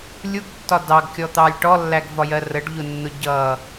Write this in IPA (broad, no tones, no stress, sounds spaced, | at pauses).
lʲ u ɡ tː ɒ d ɑ ɡ kʲ ɔ t̪ ɑ lʲ ʈ ɔ lː æ ɡ v ɒ j ɜ r ə ɖ ʎ ʊ nː ʊ ɟ ʌ